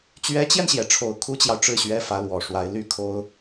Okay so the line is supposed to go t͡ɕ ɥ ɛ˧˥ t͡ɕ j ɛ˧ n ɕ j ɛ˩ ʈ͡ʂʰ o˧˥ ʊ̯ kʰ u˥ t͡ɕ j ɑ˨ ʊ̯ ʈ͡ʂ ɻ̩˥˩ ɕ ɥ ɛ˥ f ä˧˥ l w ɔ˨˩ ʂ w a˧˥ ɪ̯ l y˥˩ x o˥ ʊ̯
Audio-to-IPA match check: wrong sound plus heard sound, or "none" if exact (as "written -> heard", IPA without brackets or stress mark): x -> kʰ